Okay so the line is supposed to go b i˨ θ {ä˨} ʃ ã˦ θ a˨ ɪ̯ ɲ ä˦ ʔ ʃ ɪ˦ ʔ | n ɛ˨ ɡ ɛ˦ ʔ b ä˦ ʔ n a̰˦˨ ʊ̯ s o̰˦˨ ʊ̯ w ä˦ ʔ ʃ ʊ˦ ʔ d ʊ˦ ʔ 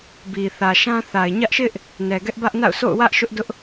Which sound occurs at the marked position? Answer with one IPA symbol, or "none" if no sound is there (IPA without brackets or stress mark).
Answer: ä˨